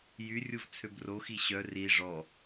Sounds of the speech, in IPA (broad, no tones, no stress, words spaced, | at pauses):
jyrʲuv t͡sʰøbroxi ɕœ ri ʐɔ